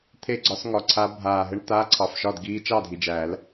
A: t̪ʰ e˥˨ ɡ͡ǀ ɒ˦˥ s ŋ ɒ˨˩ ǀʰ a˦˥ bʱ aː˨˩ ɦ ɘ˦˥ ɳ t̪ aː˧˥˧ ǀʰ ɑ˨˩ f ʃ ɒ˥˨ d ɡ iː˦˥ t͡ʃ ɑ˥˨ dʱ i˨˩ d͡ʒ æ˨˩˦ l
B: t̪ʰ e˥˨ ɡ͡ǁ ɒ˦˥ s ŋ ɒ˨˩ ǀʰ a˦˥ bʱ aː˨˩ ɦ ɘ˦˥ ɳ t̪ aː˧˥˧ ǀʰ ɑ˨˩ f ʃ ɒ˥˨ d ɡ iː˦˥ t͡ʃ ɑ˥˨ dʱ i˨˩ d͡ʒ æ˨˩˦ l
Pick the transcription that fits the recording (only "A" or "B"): A